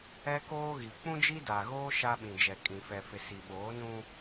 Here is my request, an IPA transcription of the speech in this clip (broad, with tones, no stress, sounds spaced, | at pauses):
ɛ˦ k oː˦ ɣ i˨ k͡p ũ˦ d͡ʒ i˦ d a˨ ɣ oː˦ ʃ a˦ ɓ ĩ˨ d͡ʒ ɛ˨ kʼ ĩ˨ f ɛ˨ f ɪ˨ s i˨ ɓ oː˨˦ n ũ˦